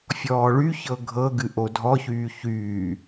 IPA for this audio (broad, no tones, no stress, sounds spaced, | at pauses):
fʲ ɔː ɭ y ç ɤ ɡʱ ɤ ɡ ɨ ʔ o dʱ ɔ ç yː ç yː